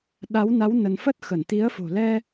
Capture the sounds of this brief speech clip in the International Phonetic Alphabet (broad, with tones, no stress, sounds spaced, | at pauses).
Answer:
ɗ a˨˦ w n a˨˦ w n ə˧ n f ə˦˥ t̚ x ə˧˩ n t̪ i˨˦ ə̯ f o̤˨˩ l ɛ˧